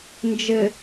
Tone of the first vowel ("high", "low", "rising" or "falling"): low